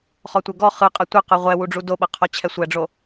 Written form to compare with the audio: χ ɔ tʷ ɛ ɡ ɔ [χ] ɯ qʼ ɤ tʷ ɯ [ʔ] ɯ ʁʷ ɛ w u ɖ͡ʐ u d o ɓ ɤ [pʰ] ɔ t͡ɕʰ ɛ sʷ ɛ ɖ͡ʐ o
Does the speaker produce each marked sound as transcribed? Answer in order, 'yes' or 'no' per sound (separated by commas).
yes, no, no